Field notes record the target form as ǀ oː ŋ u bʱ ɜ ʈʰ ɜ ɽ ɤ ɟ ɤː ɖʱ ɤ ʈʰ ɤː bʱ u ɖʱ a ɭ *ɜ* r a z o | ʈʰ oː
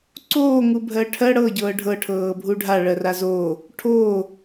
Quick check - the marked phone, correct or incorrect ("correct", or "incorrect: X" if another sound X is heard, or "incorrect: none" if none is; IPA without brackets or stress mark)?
correct